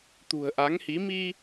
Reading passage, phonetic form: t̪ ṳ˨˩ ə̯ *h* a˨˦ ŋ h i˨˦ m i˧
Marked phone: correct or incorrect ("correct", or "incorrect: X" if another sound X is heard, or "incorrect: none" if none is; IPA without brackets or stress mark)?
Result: incorrect: ʔ